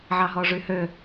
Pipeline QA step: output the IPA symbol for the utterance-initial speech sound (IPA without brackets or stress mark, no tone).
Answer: ʕ